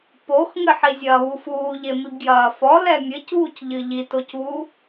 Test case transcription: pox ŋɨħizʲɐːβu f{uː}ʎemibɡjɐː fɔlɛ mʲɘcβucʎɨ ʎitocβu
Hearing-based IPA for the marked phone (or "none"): uː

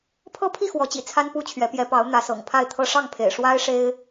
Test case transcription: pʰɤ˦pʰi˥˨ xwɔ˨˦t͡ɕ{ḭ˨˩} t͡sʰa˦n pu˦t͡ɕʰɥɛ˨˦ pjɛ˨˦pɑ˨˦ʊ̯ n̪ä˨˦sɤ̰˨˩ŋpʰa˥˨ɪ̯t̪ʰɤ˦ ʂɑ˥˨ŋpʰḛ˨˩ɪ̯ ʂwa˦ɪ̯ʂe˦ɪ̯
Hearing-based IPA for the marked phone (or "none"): ḭ˨˩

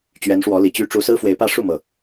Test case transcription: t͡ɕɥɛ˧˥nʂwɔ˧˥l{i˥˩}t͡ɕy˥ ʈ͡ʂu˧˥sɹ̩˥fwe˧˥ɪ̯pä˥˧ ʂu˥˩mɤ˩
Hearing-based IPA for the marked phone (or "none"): i˨˩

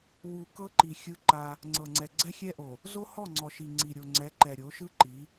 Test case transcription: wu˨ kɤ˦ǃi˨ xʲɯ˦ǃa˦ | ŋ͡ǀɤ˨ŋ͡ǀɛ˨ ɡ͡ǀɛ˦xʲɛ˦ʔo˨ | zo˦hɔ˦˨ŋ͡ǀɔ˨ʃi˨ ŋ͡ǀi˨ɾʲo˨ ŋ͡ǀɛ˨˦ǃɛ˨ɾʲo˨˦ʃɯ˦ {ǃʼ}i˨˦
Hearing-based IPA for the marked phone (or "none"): ǃ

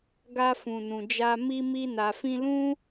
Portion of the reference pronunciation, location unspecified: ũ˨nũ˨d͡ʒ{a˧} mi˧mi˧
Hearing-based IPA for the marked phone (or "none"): a˧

